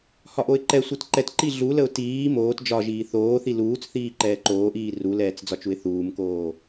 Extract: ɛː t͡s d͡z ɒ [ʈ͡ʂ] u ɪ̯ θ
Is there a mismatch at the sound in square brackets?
yes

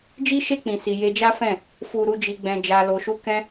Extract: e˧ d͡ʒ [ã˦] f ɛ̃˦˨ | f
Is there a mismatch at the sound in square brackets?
yes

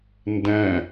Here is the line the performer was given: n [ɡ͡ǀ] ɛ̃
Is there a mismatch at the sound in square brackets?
yes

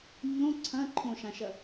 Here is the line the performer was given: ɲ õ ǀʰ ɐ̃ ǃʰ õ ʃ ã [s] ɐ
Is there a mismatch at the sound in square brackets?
yes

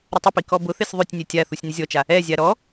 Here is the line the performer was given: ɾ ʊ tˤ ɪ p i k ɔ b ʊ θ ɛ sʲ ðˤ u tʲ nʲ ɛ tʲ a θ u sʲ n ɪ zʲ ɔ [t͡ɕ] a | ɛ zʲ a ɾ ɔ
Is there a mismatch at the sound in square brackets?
yes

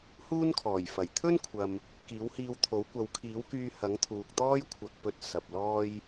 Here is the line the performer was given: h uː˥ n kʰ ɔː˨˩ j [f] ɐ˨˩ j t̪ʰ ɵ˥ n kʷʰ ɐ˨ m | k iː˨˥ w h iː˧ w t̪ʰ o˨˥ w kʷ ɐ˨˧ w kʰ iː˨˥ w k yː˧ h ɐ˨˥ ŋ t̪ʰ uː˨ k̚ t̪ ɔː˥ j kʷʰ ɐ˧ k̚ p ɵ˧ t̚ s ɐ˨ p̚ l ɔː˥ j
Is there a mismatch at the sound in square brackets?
no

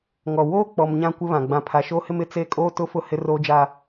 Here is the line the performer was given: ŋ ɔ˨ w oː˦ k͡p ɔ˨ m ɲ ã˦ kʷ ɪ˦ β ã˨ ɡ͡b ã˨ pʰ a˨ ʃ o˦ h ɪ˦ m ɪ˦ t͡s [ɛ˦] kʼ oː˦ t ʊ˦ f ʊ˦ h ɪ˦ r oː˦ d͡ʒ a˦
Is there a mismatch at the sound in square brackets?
yes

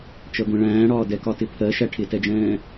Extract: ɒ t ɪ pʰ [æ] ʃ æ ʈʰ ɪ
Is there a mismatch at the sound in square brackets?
yes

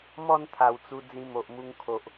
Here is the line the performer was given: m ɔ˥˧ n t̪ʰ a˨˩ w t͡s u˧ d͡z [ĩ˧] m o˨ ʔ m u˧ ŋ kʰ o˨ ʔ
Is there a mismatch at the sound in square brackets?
no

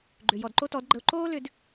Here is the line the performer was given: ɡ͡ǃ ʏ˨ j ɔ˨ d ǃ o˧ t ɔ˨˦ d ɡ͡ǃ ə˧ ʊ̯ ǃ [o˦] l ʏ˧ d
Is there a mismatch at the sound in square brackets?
yes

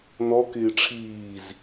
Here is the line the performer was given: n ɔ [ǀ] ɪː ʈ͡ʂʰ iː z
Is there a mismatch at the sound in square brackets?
yes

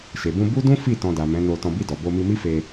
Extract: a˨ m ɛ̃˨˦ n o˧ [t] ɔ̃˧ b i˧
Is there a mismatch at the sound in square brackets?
no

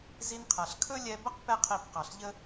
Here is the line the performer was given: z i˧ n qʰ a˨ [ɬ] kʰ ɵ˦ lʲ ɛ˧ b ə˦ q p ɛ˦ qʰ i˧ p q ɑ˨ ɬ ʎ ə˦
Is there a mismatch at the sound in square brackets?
no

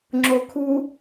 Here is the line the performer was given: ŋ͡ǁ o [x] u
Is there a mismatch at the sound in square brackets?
yes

